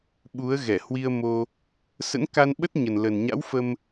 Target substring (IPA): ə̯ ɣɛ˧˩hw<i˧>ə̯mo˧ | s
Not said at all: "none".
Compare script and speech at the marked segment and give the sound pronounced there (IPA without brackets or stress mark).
i˧